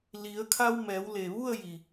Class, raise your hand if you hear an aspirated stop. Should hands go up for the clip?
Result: yes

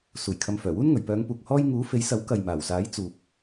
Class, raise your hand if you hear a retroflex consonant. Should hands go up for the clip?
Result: no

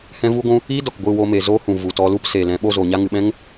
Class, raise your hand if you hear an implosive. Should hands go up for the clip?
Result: yes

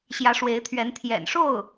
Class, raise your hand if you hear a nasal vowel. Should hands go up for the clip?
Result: no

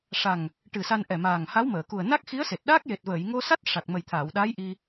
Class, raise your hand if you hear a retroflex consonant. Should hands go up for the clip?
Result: yes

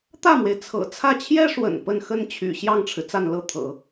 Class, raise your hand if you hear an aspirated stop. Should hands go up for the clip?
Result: yes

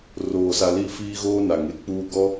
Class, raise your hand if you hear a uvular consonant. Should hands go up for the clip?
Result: no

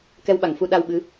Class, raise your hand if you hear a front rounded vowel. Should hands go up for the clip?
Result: no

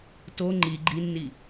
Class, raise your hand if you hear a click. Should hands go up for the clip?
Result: yes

